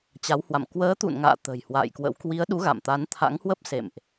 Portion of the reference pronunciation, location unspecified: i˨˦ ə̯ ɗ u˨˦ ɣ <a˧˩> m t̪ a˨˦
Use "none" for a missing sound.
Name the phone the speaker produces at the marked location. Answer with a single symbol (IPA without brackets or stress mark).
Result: a̰˧˨